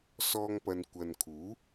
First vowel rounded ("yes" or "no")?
yes